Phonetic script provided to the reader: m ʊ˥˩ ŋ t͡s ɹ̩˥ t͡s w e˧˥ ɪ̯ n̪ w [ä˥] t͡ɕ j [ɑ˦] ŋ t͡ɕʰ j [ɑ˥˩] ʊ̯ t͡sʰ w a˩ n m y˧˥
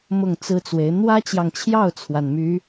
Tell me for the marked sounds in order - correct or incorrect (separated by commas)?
correct, incorrect, correct